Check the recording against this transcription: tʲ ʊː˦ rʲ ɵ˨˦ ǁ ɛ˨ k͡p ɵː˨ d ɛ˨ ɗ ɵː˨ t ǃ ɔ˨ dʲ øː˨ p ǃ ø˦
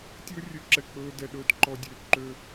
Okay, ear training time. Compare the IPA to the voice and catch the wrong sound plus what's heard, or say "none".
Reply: none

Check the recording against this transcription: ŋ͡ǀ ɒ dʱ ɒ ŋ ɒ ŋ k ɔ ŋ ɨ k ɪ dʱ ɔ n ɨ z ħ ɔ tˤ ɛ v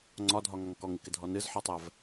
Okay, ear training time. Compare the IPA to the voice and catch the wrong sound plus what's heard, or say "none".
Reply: none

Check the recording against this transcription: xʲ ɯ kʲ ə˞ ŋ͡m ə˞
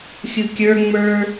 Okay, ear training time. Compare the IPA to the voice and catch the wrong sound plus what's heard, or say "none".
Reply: none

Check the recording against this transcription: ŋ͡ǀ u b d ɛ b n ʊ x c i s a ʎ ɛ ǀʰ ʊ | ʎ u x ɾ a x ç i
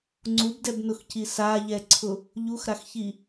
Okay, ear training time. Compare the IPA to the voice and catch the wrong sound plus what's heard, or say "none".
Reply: none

